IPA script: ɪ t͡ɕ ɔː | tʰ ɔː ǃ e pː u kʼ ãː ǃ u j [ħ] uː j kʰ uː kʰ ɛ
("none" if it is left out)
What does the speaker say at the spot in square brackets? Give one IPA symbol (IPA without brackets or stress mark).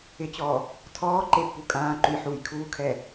ħ